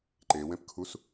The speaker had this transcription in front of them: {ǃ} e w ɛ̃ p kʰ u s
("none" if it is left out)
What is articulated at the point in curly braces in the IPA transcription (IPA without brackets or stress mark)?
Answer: ǃ